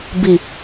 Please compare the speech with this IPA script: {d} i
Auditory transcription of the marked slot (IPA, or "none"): b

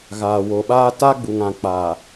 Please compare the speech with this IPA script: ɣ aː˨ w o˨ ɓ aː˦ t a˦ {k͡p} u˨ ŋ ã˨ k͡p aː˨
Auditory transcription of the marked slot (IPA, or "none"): ɡ͡b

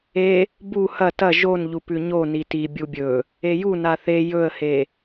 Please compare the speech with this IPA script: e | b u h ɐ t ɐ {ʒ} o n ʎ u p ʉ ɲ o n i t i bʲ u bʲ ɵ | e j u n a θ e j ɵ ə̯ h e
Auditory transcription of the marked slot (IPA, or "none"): ʒ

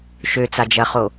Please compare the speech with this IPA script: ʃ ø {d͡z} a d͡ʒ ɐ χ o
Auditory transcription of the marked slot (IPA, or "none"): t͡s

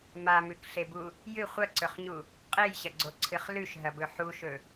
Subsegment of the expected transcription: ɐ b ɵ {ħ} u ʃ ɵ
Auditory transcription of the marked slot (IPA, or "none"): ħ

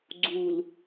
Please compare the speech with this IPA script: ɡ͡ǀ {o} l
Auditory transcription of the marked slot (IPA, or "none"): u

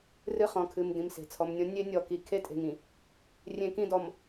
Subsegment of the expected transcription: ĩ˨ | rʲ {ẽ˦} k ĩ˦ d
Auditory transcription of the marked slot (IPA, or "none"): ẽ˦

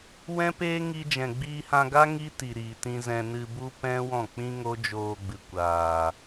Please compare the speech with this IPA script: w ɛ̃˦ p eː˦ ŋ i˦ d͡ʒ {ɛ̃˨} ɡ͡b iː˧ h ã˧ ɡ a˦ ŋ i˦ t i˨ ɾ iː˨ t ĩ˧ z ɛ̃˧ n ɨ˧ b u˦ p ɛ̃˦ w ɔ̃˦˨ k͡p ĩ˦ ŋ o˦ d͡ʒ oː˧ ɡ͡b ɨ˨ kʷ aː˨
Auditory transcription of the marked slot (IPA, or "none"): ɛ̃˨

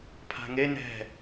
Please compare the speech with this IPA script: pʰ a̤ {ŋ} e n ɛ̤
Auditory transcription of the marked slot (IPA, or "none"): ŋ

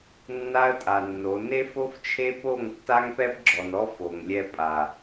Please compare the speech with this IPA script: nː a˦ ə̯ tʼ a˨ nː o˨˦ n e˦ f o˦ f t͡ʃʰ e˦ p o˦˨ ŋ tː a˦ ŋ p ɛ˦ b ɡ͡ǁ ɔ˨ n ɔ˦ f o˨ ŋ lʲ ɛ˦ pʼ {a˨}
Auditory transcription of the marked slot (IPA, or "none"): a˨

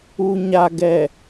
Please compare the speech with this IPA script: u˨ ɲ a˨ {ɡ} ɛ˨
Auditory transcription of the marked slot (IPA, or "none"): ɡ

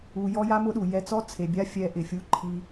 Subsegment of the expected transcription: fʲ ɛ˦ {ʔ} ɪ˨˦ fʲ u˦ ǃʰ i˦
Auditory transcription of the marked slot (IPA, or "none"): ʔ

